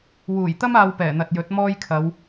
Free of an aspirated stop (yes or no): no